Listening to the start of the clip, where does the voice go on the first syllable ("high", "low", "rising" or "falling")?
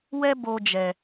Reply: high